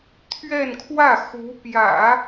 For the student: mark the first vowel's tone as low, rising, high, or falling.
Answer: falling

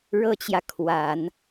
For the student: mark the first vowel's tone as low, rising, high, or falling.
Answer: high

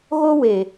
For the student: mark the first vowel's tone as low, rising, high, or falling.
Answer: high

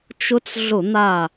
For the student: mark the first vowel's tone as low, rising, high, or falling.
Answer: rising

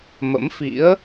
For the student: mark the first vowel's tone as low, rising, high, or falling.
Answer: rising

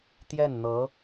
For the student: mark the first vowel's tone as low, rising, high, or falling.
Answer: falling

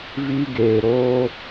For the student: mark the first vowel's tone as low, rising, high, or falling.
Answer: high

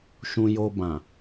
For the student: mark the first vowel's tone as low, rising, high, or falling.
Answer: low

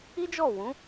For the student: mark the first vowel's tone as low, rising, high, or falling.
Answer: high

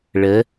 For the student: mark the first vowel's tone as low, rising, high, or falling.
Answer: rising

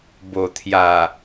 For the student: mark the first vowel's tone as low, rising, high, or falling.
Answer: low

